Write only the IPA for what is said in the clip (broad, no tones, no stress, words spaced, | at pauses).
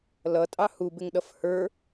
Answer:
lʌtʼɑ hubɪŋɗʌf hə˞